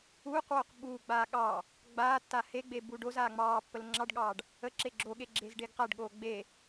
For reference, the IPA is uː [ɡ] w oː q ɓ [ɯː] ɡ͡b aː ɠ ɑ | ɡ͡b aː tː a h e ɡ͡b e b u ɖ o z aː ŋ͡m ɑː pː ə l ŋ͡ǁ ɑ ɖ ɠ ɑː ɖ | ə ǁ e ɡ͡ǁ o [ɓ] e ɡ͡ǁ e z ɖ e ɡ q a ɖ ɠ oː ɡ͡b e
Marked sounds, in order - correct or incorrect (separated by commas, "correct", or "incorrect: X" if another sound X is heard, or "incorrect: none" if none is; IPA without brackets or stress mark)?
incorrect: q, incorrect: uː, incorrect: ɠ